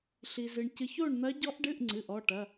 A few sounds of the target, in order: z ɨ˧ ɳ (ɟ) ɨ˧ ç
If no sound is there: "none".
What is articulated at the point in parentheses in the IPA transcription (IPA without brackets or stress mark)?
c